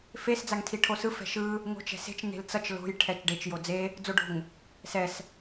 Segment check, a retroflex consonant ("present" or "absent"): present